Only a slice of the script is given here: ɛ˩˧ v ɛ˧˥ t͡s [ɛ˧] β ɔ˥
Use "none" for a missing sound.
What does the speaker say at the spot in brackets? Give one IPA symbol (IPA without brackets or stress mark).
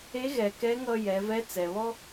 ɛ˩